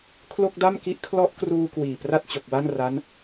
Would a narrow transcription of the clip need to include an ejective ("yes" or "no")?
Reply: no